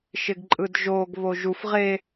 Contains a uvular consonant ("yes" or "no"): yes